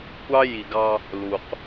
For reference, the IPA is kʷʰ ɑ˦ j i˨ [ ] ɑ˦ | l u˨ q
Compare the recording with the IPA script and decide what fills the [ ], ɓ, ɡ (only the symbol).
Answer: ɡ